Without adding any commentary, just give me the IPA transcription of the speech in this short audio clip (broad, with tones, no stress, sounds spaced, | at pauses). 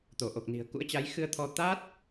t̪ o˧˩ ʔ o˨˩ k̚ n i̤˨˩ ə̯ k ṵ˧˥ ə̯ t͡ɕ a˨˦ j x ɨ˧ ə̯ t̪ʰ ɔ˧ t̪ aː˦˥ t̚